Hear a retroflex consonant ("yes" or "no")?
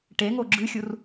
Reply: yes